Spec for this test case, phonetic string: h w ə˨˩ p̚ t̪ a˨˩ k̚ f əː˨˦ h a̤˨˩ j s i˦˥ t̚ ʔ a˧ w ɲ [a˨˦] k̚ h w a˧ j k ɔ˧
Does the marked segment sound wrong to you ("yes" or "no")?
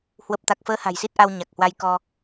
yes